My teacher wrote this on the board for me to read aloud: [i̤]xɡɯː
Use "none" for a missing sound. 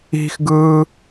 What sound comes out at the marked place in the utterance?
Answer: i̤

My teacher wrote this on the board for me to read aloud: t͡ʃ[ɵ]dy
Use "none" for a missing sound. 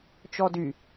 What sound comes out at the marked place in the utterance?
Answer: ɔ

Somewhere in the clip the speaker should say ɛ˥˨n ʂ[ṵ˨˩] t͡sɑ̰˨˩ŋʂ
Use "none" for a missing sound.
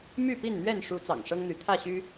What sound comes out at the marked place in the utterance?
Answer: u˨˦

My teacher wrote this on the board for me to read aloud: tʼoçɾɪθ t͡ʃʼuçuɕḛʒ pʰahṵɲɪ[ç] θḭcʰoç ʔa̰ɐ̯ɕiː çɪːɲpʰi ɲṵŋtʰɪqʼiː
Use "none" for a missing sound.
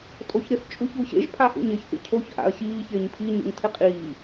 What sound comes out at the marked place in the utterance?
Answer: ç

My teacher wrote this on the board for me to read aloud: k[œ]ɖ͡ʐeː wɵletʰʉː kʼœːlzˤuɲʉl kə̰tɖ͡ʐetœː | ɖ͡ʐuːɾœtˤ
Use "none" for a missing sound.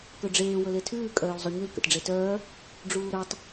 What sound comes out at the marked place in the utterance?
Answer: ɵ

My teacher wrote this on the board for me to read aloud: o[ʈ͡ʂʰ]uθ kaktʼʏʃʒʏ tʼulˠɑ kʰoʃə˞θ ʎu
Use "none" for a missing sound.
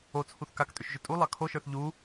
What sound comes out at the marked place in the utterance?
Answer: t͡sʰ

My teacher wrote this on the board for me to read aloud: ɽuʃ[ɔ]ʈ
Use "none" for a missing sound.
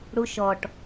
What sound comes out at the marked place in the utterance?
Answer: ɔ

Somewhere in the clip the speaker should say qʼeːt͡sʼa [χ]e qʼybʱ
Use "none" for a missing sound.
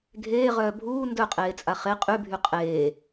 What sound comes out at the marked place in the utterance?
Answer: χ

